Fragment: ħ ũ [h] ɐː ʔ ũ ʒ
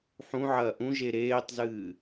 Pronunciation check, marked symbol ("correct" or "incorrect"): incorrect